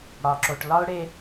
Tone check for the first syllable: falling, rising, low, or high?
low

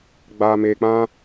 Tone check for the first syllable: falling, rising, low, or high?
low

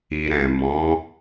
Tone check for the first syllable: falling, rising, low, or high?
low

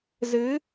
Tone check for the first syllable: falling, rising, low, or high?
rising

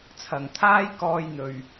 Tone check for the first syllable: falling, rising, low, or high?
low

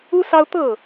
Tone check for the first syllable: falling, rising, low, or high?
high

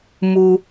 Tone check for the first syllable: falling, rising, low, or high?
high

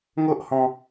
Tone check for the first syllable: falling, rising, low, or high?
high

